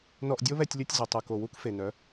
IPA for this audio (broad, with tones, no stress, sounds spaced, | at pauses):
n ɔ˧ ʔ dʲ o˦ β ɛ˧ tʲ lʲ o˧ tʲ z ʏ˨ tˤ u˨ k o˨ w u˧ k f e˨ n œ˨˦